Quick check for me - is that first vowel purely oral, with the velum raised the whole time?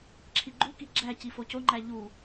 yes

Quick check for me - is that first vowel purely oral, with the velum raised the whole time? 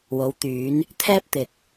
yes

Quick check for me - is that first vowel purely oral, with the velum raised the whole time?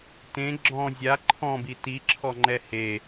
no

